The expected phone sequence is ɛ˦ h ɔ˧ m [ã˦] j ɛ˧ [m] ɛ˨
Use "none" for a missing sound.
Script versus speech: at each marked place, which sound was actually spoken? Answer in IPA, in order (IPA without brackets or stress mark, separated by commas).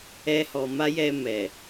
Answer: a˦, m